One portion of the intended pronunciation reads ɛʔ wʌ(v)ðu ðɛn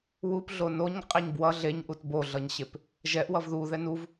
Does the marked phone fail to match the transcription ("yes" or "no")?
no